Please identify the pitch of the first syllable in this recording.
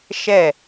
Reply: falling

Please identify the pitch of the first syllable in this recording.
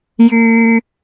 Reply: high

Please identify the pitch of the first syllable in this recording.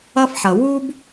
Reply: high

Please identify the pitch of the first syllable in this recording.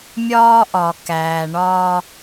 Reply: high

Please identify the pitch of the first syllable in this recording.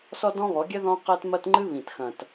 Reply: high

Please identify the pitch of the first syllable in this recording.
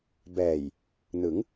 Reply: low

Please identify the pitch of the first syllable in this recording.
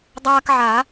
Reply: high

